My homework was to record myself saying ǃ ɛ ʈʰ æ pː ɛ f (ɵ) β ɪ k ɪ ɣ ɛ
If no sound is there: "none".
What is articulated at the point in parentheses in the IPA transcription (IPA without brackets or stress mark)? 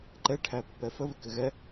ə